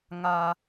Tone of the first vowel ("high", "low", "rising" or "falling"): high